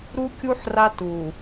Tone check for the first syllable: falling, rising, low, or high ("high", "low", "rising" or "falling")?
high